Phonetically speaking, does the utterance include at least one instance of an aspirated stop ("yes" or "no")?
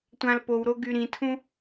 yes